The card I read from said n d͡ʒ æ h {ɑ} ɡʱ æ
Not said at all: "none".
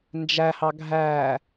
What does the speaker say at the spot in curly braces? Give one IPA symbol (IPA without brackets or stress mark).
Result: ɑ